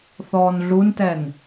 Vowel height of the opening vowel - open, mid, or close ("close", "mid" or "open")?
mid